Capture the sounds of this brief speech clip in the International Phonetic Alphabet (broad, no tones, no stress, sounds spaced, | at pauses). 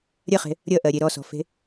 ɾʲ ɐ χ e̤ | ɾʲ ʌ ʔ ɜ ɾʲ e ɾ ɔ s ɔ̤ f e̤